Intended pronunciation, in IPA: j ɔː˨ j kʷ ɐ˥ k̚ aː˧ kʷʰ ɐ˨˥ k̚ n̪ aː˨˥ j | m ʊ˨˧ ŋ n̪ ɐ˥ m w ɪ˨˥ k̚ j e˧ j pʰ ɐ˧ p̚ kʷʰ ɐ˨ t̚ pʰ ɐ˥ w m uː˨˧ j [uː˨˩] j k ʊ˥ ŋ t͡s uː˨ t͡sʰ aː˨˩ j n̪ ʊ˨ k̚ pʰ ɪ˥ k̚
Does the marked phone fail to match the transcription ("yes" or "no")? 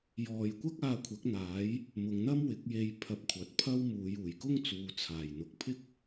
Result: no